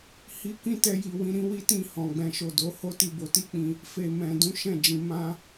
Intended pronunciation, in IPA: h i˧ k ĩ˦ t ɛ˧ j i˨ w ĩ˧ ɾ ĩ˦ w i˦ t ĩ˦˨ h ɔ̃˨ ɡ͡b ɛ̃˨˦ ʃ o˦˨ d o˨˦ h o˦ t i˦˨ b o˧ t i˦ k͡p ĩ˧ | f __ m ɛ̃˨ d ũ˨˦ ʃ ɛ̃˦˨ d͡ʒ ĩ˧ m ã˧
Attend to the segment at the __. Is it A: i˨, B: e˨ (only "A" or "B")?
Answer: B